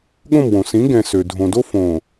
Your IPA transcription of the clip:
ɠ õ˦˨ m w õ˨ s ĩ˨˦ ɡ ɛ̃˨ s ø˨ dʱ õ˨ d o˦ f õ˨

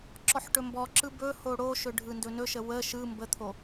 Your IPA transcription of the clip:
ǁ ɔ ħ ʈ ɵ m b ɔ ǁ ɯ b ɵ h o ɽ o ʃ ɵ ɖʱ ɯ n d ɵ n ɵ ʃ ə w ə ʃ ɯ m b ə t̪ʰ o

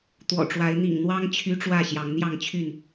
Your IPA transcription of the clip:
t̪ w ɔ̰˨˩ ʈ͡ʂ w a˨˦ ɪ̯ n̪ ḭ˨˩ ŋ n̪ w ɑ˦ ŋ t͡ɕʰ y˦ ʈ͡ʂ w ä˥˨ ɕ j ɑ˨˦ ŋ n̪ j ɑ˥˨ ŋ t͡ɕʰ y˥˨ n

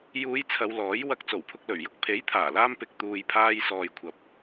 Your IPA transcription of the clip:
j uː˨˧ j t͡sʰ ɐ˨˧ w l ɔː˨˥ j w ɐ˧ k̚ t͡s o˨˩ w pʰ ʊ˧ k̚ l ɵ˨˩ ɥ j ʊ˧ k̚ pʰ e˨˥ j t̪ʰ aː˨˩ l aː˧ m p ɪ˨ k̚ t̪ uː˨ j pʰ aː˧ j s ɔː˨ j kʷʰ ɐ˨ p̚

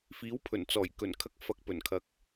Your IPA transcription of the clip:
f iː˨˥ w pʰ ɵ˨˩ n t͡s ɔː˨˩ j k ɵ˨˩ n kʰ ɐ˧ k̚ f ɐ˨ k̚ p ɵ˨˩ n kʰ ɐ˨˥ k̚

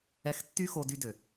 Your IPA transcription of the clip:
ɛ˧ x tː y˦ x o˧ d y˧ d ø˨

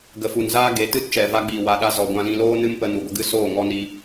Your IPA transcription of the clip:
ɡ ə˨ f u˨ n z aː˦ ɡ e˨˦ t ɨ˦ t t͡ʃ ɛ˨ v a˧ ɡ͡b iː˨ w a˧ ɗ a˦ z ɔ˨ ɡʷ ã˧ l ĩ˧ l oː˦ n ɨ˦ m p ə˧ n u˨ ɡʷ ə˦ ɡ ɨ˦ s oː˦˨ ŋ ɔ˦ n i˧

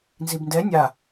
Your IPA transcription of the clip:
n z i b n d ɛ nʲ a

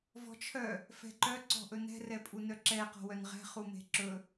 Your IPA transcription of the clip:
v ɔ̤ t͡ʃʰ œ | f ɛ̤ ǃ œ ǀ ɔ̤ ʔ ɵ n ɛ̤ r ɛ pʼ u n œ ǁ ɛ q ɔ̤ w œ n ʁ ɛ̤ χ u m e̤ ǁ ɵ

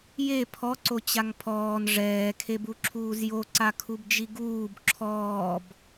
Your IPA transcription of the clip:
j e pʰ ɔ ǀ o t͡ɕ a ŋ pʰ ɔː n ʐ ɛː kʰ e b u ǁʰ uː z j o ǀ a kʰ u b d͡ʒ i ɡ uː b ǁʰ ɔː b

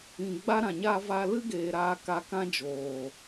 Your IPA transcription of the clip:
ĩ˨ ɡ͡b a˧ ɾ ã˨ ɲ a˧ v a˧ l ɨ˦ ɡ eː˨ ɾ aː˧ k a˧ k ã˦ d͡ʒ oː˨

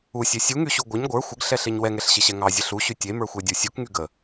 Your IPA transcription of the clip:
u sʲ ɛ sʲ u ŋ y ɕ u ɡʷ ə ɲ ɡʷ ə˞ xʷ ə ɡ ɬ ɛ ɬ e ɲ w ɛ ŋ ɛ ɬ ɕ e ɕ ɛ ŋ ɑ zʲ ə ɬ u ɕ y tʲ e m ə˞ xʷ ɛ dʲ u sʲ u k ŋ y ɡ ə

